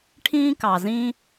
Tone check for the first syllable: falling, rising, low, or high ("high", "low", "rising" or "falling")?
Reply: high